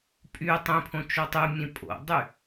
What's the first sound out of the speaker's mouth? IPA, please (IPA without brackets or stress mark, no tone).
pʼ